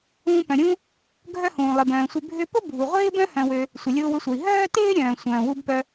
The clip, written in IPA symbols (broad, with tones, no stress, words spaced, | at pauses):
ũː˧pœ̃˩ɾʲũː˥ | ɡʱœ˥hũː˩ lˠɪ˩bœ̃ː˩sʷɪ˧ bʱʏ˧pʊ˥ bʱu˩ʁʷɪː˥bœ̃˥ hœ̃˧wø˧ | sʷɪ˩lʲʊː˧wʏ˧sʷœ˩i̯ ɦœː˥tɪː˥ ɾʲœ̃ː˩sʷœ̃ː˩wu˥b pœ˧